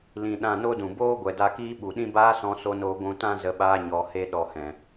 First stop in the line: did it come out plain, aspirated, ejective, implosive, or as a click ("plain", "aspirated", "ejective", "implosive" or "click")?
implosive